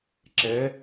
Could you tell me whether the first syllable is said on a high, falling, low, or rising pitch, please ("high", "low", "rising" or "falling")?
rising